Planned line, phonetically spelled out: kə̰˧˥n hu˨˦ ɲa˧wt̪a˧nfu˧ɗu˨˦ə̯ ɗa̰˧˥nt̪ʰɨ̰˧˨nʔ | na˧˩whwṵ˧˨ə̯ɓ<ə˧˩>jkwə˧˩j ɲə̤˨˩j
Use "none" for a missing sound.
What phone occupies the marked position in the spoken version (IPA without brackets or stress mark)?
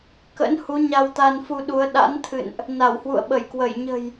ə˧˩